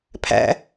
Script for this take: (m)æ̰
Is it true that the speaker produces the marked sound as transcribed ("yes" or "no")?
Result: no